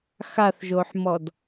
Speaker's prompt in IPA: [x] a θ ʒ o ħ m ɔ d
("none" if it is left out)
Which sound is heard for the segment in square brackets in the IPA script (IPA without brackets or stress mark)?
x